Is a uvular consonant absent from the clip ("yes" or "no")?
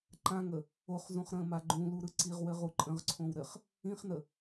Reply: no